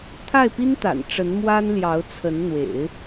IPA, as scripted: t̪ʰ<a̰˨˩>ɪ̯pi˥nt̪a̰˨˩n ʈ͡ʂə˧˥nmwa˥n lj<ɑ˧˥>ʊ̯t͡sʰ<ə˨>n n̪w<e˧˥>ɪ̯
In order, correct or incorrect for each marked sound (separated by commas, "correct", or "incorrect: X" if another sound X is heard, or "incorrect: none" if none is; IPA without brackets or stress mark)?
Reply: incorrect: a˥˩, correct, incorrect: ə˧˥, incorrect: ḛ˨˩˦